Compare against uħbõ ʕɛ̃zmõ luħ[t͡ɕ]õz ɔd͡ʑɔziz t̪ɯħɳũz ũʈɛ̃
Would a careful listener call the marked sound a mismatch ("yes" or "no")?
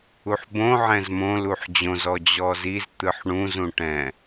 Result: yes